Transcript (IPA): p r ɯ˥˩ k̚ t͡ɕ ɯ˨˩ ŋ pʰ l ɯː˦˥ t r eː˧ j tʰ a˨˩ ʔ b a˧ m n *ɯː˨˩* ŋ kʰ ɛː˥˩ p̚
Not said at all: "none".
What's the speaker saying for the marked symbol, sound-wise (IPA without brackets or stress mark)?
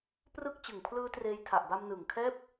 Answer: ɯː˨˩